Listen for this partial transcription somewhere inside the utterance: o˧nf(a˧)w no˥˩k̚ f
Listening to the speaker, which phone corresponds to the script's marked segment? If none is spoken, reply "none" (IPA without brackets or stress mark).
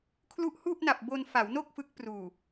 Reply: a˩˦